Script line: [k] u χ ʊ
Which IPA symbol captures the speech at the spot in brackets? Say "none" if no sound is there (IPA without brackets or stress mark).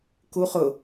k